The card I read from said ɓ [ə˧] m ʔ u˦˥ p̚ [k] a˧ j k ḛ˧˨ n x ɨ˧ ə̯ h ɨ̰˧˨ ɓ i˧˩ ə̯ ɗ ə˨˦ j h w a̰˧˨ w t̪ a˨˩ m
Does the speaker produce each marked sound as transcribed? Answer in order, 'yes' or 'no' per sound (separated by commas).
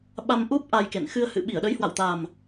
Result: no, no